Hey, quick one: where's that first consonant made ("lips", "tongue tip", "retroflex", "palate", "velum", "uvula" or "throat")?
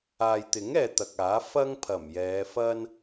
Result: palate